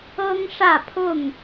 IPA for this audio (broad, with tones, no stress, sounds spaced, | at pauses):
ɤ˦ ŋ ʂ ä˥˨ pʰ ʊ˥˨ ŋ